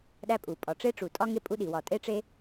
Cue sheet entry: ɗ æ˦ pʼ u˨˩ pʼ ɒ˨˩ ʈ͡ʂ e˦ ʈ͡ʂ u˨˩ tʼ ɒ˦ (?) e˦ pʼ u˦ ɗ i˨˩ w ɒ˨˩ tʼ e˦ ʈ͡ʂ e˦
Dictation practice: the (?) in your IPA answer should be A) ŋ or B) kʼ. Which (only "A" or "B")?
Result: A